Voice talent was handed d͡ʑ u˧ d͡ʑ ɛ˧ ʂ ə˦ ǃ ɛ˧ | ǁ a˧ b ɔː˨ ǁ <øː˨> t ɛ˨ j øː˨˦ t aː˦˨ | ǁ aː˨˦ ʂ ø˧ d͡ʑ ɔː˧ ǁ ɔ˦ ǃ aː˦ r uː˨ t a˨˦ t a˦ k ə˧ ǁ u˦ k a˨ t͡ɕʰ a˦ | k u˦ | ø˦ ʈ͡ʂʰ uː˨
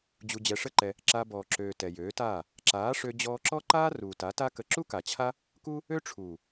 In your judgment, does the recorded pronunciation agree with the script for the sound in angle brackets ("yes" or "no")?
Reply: yes